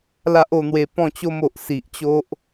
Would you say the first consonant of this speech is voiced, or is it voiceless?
voiced